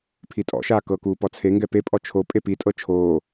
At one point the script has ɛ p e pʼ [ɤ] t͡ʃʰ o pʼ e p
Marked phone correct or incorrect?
incorrect